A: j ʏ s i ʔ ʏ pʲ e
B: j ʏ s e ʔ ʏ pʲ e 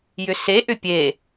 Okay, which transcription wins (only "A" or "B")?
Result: B